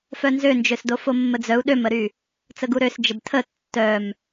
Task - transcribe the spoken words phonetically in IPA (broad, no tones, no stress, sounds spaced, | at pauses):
f œ n z ø n d͡ʒ ø s d o f o mː ə d͡z œ u̯ ɗ ø m ə ɾ y | t͡s ə ɡ u ɾ ø s d͡ʒ ə b tʰ ə tː œ m